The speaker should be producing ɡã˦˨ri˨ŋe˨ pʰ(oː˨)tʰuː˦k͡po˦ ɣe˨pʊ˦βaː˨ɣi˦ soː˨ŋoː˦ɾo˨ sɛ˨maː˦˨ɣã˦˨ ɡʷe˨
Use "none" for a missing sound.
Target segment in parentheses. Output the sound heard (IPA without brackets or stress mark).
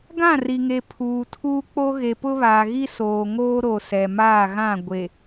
uː˨